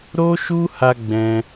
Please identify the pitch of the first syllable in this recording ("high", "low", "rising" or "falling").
high